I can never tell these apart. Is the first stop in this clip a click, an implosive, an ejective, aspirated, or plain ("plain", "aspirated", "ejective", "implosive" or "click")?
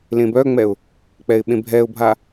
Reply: plain